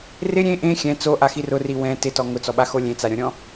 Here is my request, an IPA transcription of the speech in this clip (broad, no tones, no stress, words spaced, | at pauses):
rɪ ɾʲẽ ʔẽ xʲɛ̃ t͡soʔaxi rʊri wɛ̃ tɪtɔ ŋʊt͡sɔɓaxo lʲẽt͡saɾʲɔ̃ɾʲɔ̃